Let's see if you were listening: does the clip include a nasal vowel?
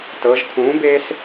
yes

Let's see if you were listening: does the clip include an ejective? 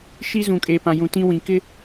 yes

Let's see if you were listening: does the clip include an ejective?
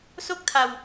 no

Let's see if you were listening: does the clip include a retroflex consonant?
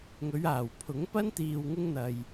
no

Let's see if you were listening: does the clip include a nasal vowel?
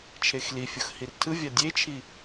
no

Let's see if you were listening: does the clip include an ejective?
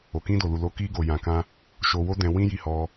no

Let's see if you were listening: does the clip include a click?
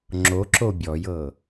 yes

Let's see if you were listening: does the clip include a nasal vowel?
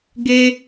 no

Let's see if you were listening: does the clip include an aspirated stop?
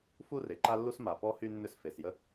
no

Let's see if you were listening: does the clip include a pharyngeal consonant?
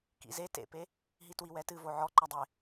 yes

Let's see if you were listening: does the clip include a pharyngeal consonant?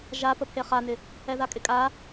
no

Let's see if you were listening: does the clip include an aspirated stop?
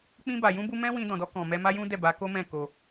no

